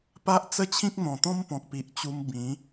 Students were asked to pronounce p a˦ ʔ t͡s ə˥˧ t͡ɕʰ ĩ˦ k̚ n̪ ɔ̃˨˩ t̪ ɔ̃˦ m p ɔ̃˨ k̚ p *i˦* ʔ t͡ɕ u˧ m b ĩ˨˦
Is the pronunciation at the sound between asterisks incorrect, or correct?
incorrect